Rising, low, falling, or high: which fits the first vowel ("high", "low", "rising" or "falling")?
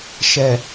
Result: low